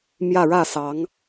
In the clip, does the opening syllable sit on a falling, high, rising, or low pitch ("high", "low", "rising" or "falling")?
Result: falling